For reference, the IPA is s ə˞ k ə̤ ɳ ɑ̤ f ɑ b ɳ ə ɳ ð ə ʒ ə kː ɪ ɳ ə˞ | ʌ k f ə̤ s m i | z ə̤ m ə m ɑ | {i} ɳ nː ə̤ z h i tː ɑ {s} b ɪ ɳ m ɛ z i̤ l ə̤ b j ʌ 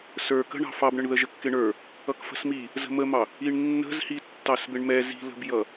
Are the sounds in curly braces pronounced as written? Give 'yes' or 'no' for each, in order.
yes, yes

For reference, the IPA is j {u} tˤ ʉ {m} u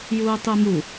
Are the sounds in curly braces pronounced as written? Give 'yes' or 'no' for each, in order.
no, yes

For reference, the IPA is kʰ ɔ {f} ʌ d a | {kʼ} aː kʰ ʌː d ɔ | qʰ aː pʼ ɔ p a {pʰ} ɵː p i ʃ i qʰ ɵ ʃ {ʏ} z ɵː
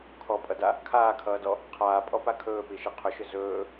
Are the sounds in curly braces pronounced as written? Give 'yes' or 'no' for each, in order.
no, no, no, yes

